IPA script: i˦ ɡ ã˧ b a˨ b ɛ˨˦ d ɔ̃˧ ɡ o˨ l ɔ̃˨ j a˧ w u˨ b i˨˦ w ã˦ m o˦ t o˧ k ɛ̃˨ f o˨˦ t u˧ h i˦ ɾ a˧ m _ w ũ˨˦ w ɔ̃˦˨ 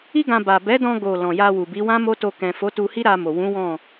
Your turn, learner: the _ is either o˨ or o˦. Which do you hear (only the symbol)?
o˨